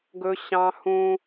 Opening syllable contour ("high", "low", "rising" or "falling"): high